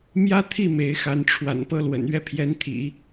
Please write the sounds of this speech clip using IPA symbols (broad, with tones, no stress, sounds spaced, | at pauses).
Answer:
m j ä˥ t̪ʰ i˥˩ m e˧˥ ɪ̯ x a˧˥ n ʈ͡ʂʰ w a̰˨˩ n p ɤ˥ l w ə̰˨˩ n ɥ ɛ˥˩ pʰ j ɛ˧˥ n t̪ʰ ḭ˨˩˦